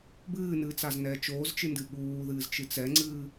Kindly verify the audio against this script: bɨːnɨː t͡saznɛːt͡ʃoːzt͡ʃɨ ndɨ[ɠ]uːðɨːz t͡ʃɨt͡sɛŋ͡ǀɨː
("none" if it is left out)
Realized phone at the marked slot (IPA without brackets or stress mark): ɠ